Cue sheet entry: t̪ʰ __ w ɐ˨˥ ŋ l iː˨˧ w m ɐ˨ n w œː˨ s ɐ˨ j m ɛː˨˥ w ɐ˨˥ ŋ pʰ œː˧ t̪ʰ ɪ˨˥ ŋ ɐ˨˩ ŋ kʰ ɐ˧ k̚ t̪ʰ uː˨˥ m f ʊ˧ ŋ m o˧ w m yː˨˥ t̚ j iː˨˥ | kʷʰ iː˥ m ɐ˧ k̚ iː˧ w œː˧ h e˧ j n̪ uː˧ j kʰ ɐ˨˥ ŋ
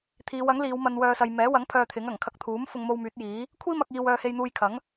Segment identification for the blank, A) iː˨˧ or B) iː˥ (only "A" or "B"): A